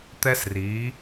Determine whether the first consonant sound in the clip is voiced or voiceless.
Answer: voiceless